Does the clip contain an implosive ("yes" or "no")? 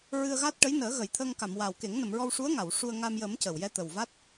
no